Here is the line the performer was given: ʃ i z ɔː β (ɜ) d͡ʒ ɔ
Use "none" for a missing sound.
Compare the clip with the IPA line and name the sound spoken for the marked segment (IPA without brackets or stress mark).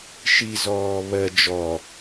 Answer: ɜ